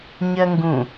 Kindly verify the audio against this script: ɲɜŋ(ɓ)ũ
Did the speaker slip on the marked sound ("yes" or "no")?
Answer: yes